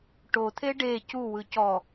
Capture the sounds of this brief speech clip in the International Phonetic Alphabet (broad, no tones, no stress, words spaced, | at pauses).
ʈot̪ʰe ɖe cuwɯ cɔ